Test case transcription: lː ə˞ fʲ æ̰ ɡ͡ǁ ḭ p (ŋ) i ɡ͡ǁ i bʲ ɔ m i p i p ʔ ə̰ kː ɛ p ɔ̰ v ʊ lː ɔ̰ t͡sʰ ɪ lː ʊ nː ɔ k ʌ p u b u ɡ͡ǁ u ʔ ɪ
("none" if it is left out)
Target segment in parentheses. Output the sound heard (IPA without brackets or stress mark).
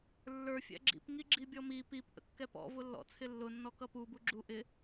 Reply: ŋ